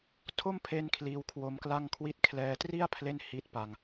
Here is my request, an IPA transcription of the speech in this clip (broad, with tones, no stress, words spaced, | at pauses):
tʰo˥˩mpʰe˦˥n kʰliː˦˥wkʰwo˦˥mkla˥˩ŋkʰwi˥˩t̚ kʰlɛː˧tri˥˩a̯ pʰle˥˩n hi˦˥t̚pa˧ŋ